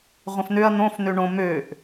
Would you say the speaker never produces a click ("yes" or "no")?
yes